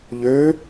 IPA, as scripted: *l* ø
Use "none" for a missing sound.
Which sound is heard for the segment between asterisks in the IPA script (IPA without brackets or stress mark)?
ʎ